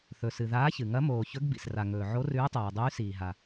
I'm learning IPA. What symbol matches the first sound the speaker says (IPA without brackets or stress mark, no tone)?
θ